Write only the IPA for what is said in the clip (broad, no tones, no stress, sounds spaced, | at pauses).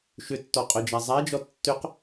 ʃ ʏ tː ɔ qʼ œ d͡ʒ a zˤ a d͡ʒ ɔ tː ʏ q